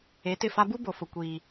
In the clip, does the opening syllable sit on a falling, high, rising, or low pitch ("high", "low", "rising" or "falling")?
rising